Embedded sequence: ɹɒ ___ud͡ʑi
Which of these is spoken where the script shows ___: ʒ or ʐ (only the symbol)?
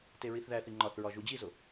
ʒ